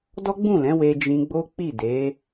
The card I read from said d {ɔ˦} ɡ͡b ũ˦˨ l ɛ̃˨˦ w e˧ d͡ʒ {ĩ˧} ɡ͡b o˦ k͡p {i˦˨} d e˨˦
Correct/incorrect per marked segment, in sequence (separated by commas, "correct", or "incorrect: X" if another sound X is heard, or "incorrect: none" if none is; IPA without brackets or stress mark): correct, correct, correct